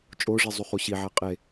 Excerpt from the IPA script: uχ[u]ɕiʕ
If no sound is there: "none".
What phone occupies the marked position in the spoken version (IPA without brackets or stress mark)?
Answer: u